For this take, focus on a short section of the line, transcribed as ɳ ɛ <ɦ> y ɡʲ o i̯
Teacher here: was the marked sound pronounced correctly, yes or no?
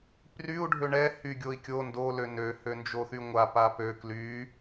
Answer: no